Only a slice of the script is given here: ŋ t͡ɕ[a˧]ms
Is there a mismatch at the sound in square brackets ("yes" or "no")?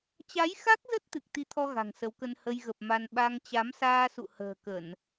yes